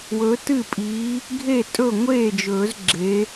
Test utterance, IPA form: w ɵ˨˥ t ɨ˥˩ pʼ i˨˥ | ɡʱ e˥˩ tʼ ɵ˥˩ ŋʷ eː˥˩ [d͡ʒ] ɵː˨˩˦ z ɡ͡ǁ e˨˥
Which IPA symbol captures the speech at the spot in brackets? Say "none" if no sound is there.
d͡ʒ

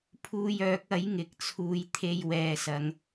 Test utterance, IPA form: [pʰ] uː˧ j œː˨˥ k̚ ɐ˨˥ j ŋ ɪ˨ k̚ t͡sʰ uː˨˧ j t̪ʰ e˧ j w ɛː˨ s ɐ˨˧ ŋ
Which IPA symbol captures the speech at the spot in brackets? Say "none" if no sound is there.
pʰ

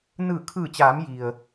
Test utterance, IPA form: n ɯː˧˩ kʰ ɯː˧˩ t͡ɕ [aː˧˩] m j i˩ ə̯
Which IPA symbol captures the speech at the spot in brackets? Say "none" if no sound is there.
aː˩˧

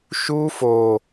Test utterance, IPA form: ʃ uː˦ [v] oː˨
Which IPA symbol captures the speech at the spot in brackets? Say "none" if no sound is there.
f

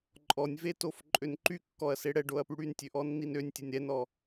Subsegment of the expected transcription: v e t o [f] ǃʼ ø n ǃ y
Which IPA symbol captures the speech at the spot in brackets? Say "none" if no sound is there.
f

